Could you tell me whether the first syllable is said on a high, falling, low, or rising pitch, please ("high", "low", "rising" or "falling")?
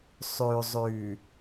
low